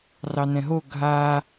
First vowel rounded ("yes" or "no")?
no